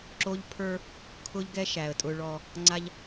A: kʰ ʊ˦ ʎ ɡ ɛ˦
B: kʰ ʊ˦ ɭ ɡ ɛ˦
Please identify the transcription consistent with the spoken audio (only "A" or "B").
A